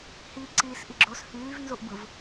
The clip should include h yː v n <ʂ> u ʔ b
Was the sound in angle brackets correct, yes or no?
no